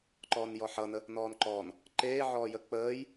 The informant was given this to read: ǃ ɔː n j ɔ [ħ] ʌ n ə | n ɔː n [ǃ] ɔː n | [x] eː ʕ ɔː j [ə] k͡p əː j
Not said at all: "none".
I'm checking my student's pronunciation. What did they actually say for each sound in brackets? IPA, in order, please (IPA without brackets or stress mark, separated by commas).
ħ, ǃ, ǃ, ə